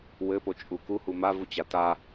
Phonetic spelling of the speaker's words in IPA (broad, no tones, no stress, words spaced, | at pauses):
wɘpo t͡ʃʼuku humavut͡ɕa ta